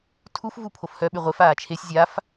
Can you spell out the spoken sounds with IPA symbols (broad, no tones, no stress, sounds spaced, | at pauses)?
tʰ u f v u pʰ o f h œ ɓ y ʁʷ e f aː t͡ʃʰ e sʲ zʲ a f